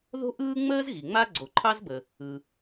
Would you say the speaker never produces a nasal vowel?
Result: yes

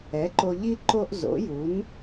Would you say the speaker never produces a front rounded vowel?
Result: yes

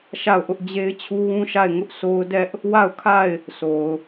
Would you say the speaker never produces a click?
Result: yes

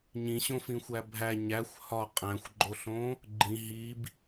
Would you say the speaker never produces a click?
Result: no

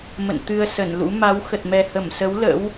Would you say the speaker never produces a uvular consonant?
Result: yes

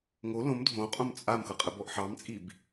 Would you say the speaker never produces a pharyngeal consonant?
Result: no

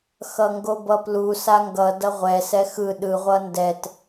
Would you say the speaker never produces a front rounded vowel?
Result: yes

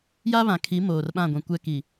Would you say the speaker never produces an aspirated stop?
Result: no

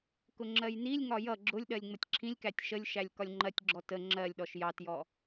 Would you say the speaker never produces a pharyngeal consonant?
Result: yes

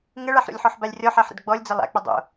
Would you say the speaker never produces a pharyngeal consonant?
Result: no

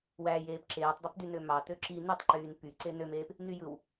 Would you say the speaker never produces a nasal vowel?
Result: yes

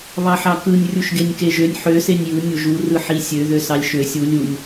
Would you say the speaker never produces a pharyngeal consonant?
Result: no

